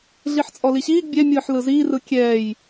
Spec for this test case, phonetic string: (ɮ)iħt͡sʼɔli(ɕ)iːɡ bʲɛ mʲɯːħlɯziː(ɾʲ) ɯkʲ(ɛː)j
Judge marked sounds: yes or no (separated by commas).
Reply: yes, yes, no, yes